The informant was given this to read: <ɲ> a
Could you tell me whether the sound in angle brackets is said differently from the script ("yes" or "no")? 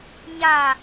no